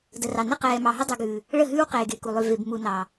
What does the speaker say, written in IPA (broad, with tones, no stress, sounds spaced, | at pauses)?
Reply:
d ə˨ r ɑ˨ n ə˦ q ɛː˨ m ɑ˨ ɦ ə˦ dˤ ʉ˨ ɡ ʉː˨ | ɭ ə˦˨ ɦ ʉː˦ w q eː˨ ɡ e˨ k u˨ lˠ ʉ˨ v e˨ b m u˨ n ɑː˨